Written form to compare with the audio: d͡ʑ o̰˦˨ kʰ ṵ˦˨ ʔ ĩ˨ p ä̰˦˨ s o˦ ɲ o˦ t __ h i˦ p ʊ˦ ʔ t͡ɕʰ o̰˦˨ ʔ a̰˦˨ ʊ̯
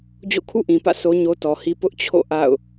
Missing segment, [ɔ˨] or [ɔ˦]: ɔ˨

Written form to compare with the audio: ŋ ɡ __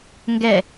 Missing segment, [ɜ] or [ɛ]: ɛ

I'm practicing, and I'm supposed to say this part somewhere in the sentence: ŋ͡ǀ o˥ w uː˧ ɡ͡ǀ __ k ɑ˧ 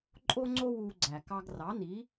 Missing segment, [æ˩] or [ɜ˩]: æ˩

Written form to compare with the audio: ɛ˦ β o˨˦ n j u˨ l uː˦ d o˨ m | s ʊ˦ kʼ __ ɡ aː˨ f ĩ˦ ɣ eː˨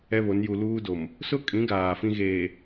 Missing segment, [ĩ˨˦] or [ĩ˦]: ĩ˨˦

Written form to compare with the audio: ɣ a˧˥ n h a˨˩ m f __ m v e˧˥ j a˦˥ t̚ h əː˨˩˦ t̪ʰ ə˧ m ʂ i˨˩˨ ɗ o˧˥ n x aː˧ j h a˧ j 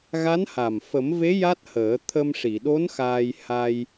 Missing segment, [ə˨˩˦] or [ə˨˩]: ə˨˩˦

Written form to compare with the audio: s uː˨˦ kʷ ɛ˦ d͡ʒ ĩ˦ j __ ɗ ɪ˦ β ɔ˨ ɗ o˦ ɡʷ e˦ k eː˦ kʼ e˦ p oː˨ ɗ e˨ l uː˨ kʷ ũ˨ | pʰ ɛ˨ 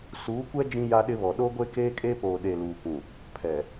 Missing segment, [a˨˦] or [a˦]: a˦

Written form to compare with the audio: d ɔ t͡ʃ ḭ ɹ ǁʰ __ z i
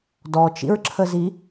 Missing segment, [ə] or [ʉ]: ə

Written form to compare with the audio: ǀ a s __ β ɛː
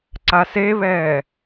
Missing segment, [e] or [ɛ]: e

